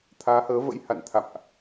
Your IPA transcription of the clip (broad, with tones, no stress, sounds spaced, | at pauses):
t̪ʰ aː˨˦ h əː˨˦ v ə̰˧˥ j h a̰˧˨ n t̪ʰ a̰˧˨ m ʔ